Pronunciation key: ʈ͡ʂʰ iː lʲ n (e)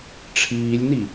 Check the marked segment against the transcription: incorrect: i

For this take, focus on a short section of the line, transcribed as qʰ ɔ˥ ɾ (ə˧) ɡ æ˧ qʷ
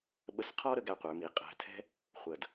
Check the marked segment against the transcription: correct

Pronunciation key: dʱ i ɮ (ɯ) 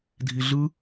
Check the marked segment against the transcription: correct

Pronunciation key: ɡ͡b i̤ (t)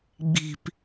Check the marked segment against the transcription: incorrect: p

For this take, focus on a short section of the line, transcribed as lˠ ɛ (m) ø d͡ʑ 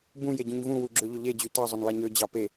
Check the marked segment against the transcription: incorrect: ɲ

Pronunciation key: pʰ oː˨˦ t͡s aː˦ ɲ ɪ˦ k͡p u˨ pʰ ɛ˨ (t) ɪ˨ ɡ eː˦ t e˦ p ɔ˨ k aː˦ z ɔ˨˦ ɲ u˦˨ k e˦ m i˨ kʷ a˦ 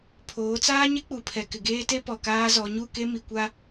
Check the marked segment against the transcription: incorrect: k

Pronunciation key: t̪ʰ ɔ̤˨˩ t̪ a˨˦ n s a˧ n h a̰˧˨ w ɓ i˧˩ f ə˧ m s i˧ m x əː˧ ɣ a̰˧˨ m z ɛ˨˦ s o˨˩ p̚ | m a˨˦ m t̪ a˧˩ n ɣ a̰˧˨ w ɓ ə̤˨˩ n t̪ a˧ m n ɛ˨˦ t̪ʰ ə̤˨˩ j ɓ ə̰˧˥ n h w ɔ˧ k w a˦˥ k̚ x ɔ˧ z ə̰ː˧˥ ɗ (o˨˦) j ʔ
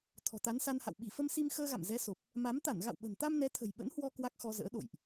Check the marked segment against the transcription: incorrect: o̰˧˨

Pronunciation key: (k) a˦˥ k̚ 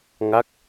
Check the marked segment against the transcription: incorrect: ŋ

